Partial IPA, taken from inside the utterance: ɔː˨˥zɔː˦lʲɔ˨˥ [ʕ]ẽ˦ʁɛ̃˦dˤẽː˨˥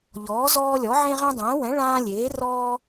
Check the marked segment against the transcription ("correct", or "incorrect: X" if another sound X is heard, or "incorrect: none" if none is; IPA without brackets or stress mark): correct